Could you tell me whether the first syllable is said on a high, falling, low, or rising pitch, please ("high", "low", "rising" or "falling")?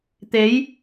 rising